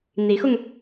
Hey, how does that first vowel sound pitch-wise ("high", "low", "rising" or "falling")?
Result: rising